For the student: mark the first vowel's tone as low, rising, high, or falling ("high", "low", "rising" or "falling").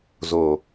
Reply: low